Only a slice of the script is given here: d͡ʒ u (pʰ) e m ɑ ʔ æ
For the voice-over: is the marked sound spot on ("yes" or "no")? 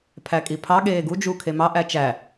no